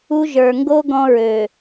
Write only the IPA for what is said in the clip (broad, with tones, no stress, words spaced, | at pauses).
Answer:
u˦ ʒə˞˨ŋɡo˦ ɡɔ̃˦ɹø˨